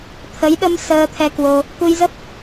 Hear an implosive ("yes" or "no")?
yes